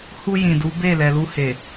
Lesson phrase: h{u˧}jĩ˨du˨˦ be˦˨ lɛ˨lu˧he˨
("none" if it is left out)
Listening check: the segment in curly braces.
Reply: u˧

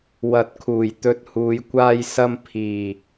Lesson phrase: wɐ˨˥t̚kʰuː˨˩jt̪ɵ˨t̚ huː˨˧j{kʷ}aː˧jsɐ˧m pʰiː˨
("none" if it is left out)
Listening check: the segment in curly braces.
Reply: kʷ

